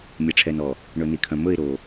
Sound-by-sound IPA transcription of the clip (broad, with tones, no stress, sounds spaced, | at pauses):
mʲ ɛ˨ ʈ͡ʂʰ ɛ˨ n ɔ˨ | ɳ ɵ˨ n i˨ kʰ œ̃˨ m ɵ˦˨ ɪ̯ ɾ o˨